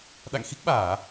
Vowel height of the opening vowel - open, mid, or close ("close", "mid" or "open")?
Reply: open